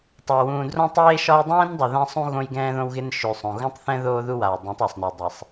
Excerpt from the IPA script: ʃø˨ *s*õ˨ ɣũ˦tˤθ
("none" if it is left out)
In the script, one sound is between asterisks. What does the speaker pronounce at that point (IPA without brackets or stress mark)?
sˤ